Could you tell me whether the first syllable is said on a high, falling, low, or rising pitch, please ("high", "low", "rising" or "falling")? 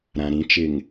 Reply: low